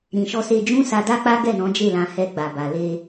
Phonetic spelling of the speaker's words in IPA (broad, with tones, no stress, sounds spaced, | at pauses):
ɾ ĩ˨ ʃ ɔ˧ s e˧ d͡ʒ ũ˦ s a˧ d a˦ k͡p a˦ ɡ ɛ˦˨ n ɔ̃˨˦ d͡ʒ e˦˨ l ã˧ h ɛ˧ ɡ͡b a˧ b a˧ l e˧